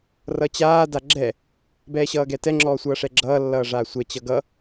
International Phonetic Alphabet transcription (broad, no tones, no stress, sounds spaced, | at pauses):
r ʌ t͡ɕ aː d a ɡ͡ǁ ɛ | b ɛː ɕ ʌː ɡ ɛ t ɛ ŋ͡ǁ ɔː sʷ ʌː ʂ ɛ ɡ͡ǁ ʌː lː ʌː ʐ aː sʷ ɛ t͡ɕ ʌ ɡ ʌ